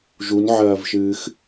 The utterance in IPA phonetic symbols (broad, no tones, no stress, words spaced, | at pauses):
ʒunʕɐːvʃɨːx